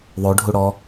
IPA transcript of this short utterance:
ðˤ o ɖʱ u ɽ ɔ

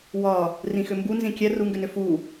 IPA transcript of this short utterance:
w ɒ | r ĩ x ʏ m b u n z ĩ kʲ ɛ r u ŋ ɡ ʏ n ʏ f u

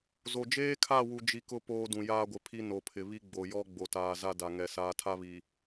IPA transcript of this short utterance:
z o˨ d͡ʒ eː˦ kʰ a˦˨ w u˦ d͡ʒ i˦ k ʊ˦ p oː˦ d ũ˨ j aː˦ ɡʷ ɪ˨ pʰ i˦ n o˨ pʰ ɪ˨ β i˦ ɡ͡b o˨ j ɔ˦ ɡ͡b o˨ t aː˨ z a˦ d a˨ ŋ ɛ˨ s aː˦ tʰ a˦ β i˨

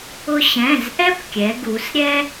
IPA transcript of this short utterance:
ʊ˧ ɕ ɛ̃˩˧˩ z ʔ ɛ˥ p kʲ ɛ˩˧ ɡ u˩˧ s ɾʲ ɛ˥

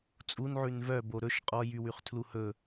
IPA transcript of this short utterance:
t͡sʼ u n ʕ ʉ n v œ b o ɾ ɵ ʃ qʼ ɔ j y w y χ tʰ l u h ɵ

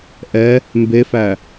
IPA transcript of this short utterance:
ʔ ɛ | m b e f æ

